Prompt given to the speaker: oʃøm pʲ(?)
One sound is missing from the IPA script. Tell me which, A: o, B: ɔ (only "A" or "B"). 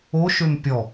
B